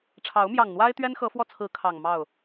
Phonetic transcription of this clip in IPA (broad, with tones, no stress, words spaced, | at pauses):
ʈ͡ʂʰɑ˨˦ʊ̯mjɑ˨˩ŋn̪wa˦ɪ̯ t̪ɥɛ˦nxɤ˨˦fwɔ˧t͡sʰɹ̩˨˦ kʰɑ˨˩ŋ mɑ˥˨ʊ̯